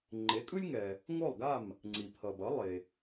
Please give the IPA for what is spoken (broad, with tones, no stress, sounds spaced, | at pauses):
ŋ͡ǃ e˩˥ kʼ ɯ˥ lʲ ŋ ɛ˩ | ŋ o˥˩ lˠ ɡ a˥˩ m | ŋ͡ǀ i˩ pʰ ʌ˩ b ʌ˩˥ lˠ e˩